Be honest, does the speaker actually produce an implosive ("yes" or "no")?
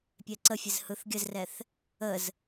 no